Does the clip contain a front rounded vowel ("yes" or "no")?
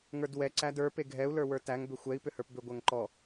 yes